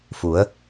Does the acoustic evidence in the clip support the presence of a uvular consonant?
no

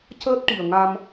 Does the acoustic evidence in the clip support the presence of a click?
no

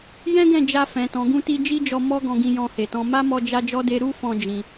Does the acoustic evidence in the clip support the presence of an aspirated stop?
no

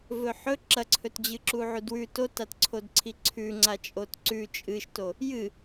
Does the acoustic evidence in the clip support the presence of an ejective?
yes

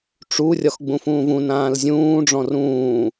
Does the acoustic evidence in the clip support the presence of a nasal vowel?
yes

